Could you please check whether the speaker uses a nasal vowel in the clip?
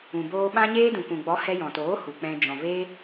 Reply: yes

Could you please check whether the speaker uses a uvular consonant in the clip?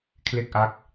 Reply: no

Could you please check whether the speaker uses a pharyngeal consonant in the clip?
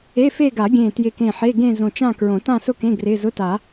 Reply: yes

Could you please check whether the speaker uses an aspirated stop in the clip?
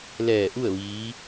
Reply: no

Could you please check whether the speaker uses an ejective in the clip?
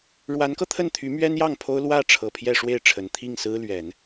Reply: no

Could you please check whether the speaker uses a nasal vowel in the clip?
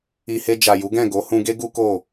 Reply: yes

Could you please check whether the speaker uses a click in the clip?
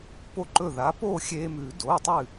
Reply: yes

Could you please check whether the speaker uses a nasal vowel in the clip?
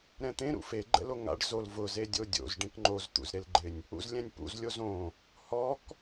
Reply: yes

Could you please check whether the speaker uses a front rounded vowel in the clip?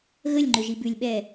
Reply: yes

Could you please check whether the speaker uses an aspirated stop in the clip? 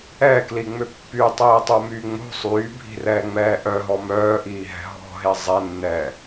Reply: no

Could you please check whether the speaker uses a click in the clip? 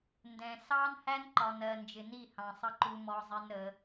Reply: yes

